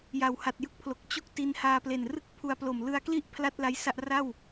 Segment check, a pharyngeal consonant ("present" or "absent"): absent